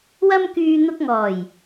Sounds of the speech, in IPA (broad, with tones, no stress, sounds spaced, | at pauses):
w ɐ˥ m k yː˧ n̪ ʊ˧ k̚ ŋ ɔː˨˩ j